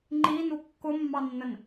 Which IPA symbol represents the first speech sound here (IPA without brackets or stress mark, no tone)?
ŋ͡ǃ